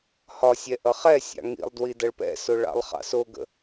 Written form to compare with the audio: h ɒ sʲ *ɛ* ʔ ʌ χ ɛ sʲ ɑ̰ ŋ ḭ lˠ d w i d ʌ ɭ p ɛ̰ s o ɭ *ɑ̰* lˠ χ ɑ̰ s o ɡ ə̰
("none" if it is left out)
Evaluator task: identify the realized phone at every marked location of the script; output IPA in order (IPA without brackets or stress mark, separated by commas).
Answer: ɛ, ɑ̰